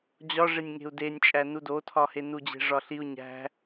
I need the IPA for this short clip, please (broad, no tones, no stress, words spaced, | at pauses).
d͡ʑɒ ʐenʲŋe̤u̯denʲt͡ʃʼæ nudotʰɒhe nud͡ʑe̤ʐɒɬiu̯ ɲæ̤